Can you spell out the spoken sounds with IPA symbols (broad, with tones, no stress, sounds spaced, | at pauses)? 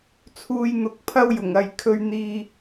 t͡sʰ uː˧ j n̪ ʊ˨˥ k̚ pʰ ɐ˥ w j ʊ˨˩ ŋ ɐ˨ j kʰ ɵ˧ ɥ n̪ iː˧